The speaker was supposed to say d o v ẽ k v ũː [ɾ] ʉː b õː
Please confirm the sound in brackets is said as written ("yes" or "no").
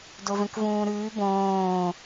yes